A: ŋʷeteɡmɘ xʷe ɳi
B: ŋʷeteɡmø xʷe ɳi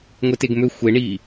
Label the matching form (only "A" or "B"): B